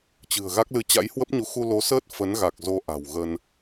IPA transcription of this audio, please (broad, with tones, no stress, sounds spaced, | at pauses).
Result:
t͡ɕ ɨ̤˨˩ ə̯ ɣ a˦˥ k̚ l ɨ˧ t͡ɕ a̰˧˥ j h w ə˦˥ p̚ ɲ u˨˦ x u˧ l o˨˦ s əː˦˥ t̚ f ə˨˦ n ɣ a˨˩ k̚ z o˨˦ ʔ a̤˨˩ w ɣ ə˧ n